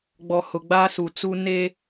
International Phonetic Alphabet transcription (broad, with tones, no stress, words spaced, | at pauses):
ɡ͡bɔ˨hʊ˨ɡ͡baː˦su˨ t͡su˦ ne˦